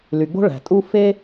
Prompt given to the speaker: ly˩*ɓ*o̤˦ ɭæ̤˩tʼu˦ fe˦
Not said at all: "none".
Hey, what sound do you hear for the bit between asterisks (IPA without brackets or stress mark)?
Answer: ɡ͡b